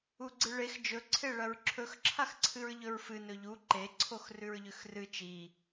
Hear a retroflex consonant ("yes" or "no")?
yes